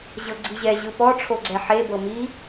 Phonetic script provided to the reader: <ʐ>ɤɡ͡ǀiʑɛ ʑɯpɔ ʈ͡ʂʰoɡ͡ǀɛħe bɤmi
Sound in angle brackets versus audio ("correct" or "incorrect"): incorrect